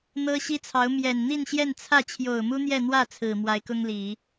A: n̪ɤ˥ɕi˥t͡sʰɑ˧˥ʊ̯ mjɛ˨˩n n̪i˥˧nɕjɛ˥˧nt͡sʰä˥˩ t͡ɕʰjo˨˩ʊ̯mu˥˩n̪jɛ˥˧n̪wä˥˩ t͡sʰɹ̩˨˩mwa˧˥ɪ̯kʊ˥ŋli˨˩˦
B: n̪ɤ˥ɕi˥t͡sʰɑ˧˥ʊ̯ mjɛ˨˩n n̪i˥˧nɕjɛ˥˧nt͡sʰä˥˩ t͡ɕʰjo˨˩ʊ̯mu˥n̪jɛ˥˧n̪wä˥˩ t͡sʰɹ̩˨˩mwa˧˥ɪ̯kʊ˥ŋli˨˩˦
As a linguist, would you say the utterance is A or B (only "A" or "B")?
B